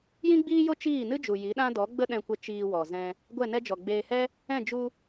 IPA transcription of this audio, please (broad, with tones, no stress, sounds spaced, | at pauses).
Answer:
j ĩ˦ ɡ͡b iː˦ j o˦ t͡ʃ iː˦˨ n ɨ˦ d͡ʒ u˨ j i˨˦ ɗ ã˦ d ɔ˨˦ ɡ͡b ə˦ ɗ ɛ̃˧ kʷ ə˧ t͡ʃ iː˧ w ɔ˨ z ɛ̃˧ | ɡʷ ɛ˦˨ n ɛ˦ d͡ʒ ɔ˨ ɡ͡b eː˧ h ɛ˦ | ɛ̃˦˨ d͡ʒ u˧